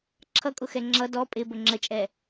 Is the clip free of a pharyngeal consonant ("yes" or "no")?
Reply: yes